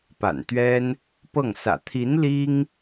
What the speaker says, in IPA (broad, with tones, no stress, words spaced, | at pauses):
pa̰˨˩nt̪ɥɛ˥n | pɤ˥˩ŋsä̰˨˩ t̪ʰi˧˥n li˥ŋ